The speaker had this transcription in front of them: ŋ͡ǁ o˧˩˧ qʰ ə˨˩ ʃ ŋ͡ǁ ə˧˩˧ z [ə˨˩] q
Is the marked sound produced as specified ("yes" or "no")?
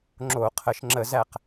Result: no